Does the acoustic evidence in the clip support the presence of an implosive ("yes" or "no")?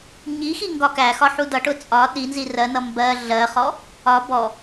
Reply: yes